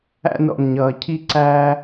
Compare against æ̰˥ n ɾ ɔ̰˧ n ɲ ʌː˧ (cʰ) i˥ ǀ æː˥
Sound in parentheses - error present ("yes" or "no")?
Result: no